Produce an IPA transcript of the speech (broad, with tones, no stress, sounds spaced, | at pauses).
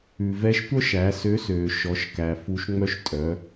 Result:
ʉ˩ v ɛ˧ ʃ tʷ œ˥ ʃ æ˩˧ s ø˧˥ s øː˩ ʃ ɔ˩˧ ʃ k æ˩ f u˧˥ ʃ ŋ͡m œ˥ ʃ tʼ œ˩˧